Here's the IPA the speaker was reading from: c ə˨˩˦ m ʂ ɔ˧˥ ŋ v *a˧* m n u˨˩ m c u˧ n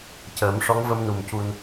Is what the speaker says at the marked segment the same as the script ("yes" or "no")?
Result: no